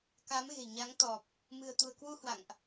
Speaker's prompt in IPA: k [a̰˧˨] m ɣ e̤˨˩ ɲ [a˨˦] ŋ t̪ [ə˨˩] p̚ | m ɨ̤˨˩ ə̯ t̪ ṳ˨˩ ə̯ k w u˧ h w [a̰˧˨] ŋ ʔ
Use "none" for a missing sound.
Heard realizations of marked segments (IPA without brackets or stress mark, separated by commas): a˨˦, a˨˦, ɔ˨˩, a̰˧˨